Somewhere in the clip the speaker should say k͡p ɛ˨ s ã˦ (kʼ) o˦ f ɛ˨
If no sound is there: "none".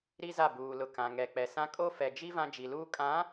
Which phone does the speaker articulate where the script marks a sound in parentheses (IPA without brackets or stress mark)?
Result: kʼ